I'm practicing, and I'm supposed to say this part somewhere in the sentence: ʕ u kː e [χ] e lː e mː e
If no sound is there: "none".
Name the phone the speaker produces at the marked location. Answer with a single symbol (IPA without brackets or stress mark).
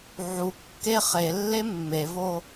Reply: χ